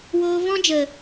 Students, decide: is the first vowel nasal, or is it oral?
oral